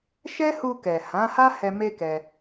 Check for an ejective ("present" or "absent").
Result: absent